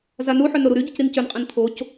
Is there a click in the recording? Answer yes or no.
no